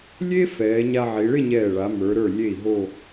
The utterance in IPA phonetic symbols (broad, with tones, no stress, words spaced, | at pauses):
lʲe˥fɛː˩˧ ɲa˧ʕi˩˧ɭɪ˥˧ɲɛː˧˩ ɭa˩˧mə˞˩˧ɾə˞˧˩lʲe˧˩i̯ ɦo˥˧